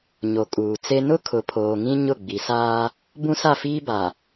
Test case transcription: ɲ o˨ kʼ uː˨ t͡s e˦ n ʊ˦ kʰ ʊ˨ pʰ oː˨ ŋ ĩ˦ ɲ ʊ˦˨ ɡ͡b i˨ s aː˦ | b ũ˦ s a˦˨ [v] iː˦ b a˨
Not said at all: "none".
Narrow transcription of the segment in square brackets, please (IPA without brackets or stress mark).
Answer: f